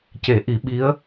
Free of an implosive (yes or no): no